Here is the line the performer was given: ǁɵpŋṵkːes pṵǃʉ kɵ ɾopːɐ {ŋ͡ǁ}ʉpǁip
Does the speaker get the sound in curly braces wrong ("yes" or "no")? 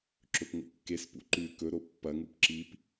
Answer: yes